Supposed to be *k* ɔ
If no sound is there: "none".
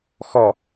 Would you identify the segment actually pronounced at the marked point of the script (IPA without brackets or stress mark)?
x